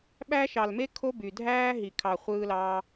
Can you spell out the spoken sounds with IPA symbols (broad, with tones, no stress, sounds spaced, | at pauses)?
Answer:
ɓ æ˦ ʃ ɑ˧ l m e˦ kʰ o˦ b y˧ dʱ æː˦ ɦ i˧ kʰ ɑ˧ χʷ ɯː˦ l ɑː˦